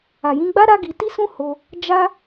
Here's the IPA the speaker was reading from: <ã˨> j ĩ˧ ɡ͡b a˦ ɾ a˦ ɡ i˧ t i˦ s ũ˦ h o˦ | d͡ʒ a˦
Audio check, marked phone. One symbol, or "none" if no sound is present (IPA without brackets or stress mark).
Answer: a˨